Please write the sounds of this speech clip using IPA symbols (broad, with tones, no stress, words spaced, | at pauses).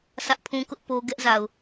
sʰä˦ʔpʰũ˦kʊ˦ʔ po˦ ɡɛ˦ʔza˨ʊ̯